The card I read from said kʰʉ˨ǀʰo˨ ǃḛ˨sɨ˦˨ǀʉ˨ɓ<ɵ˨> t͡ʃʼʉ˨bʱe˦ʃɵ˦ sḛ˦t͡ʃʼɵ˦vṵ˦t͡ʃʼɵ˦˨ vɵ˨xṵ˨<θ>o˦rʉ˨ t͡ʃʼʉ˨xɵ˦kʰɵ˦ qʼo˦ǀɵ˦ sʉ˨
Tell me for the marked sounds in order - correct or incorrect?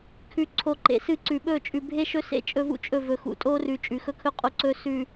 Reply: incorrect: ɵ˦˨, incorrect: tʼ

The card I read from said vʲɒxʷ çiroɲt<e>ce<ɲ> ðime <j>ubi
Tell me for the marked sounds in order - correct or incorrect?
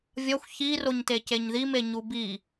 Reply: correct, correct, incorrect: ɲ

